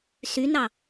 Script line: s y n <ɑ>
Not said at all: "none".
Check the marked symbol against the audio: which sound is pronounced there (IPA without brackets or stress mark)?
ɑ